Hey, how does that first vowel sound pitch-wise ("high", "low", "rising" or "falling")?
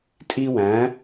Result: high